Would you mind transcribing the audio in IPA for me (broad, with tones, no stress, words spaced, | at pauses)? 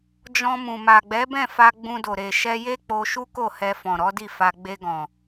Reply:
d͡ʒɔ̃˧mũ˨ ma˨ɡ͡bɛ˨˦bɛ̃˦˨fa˧ ɡ͡bũ˧do˨ ɾe˨ʃɛ˧ je˦k͡po˧ʃu˦ ko˦˨hɛ˧fɔ̃˨ ɾɔ˨˦di˦˨ fa˧ ɡ͡be˧ɡɔ̃˨